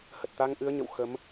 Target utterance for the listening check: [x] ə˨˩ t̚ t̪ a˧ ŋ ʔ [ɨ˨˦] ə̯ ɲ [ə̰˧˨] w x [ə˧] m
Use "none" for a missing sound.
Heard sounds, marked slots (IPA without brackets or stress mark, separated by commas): h, ɨ˨˦, ə̰˧˨, ə˨˦